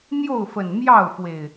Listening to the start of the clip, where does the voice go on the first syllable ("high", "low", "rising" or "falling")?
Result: falling